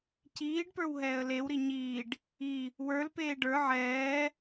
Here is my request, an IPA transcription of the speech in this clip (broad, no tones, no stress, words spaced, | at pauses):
ciːɖpə˞w ɦɛːə̯lewɾi ɲiːɖ | i | wə˞lpeː ɖə˞ ʕɛː